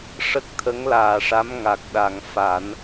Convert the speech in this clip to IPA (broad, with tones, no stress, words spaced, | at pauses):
ʂə˦˥k̚t̪ʰə˧˥ŋlaː˨˩ʂa˧˥m ŋa˨˩k̚ɗa˨˩ŋ fa˨˩˦n